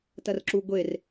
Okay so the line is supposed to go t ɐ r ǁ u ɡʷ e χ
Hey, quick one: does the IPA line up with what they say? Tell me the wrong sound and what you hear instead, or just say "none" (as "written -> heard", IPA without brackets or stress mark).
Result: χ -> r